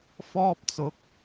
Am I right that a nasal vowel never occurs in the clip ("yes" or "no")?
yes